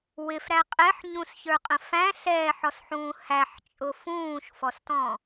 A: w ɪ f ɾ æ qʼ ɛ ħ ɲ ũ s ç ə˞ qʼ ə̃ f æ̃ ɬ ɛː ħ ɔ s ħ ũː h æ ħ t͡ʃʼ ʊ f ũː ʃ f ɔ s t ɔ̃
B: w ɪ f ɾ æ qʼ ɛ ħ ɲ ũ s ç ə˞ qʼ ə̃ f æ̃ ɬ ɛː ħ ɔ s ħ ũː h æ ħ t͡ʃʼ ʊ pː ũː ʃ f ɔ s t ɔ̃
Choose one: A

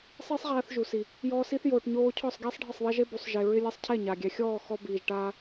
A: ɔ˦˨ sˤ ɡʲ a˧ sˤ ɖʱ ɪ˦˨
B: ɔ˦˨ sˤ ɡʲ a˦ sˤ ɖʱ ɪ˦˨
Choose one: B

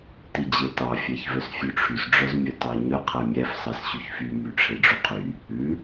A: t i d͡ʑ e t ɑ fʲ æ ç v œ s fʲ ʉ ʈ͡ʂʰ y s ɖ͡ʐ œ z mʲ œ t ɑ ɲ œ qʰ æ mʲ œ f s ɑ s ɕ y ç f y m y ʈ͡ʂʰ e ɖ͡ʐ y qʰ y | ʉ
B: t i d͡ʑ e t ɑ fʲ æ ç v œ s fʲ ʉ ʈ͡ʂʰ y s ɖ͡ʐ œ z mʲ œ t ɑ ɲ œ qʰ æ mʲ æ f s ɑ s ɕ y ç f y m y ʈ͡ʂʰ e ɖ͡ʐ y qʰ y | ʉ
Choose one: B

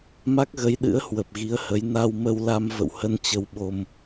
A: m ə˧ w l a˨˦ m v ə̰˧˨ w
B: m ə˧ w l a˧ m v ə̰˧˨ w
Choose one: B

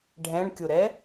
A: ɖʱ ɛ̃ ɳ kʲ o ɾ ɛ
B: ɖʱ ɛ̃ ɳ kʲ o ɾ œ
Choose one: A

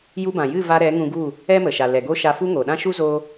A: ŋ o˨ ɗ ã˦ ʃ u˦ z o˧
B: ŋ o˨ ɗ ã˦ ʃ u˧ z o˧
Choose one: A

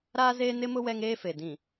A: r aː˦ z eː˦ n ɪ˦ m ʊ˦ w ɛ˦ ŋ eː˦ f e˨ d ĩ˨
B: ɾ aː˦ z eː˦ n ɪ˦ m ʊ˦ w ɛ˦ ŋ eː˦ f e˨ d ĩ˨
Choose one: B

